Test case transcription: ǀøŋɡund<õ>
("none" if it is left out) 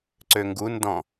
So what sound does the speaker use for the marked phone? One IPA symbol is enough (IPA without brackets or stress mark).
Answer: ɔ̃